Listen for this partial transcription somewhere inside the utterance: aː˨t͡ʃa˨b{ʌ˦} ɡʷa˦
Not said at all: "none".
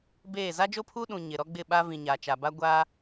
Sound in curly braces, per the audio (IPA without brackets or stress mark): a˦